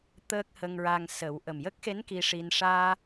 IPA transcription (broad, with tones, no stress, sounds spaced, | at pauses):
t̪ əː˦˥ k̚ h ə˧ ŋ ɹ a˧ ŋ s ə˨˩˦ w ʔ ə˨˩ m j ə˦˥ k̚ x e˧˥ n k i˧ ʂ i˧ n ʂ aː˧